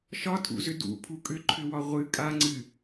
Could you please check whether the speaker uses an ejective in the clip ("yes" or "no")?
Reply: yes